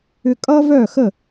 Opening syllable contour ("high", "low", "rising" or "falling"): high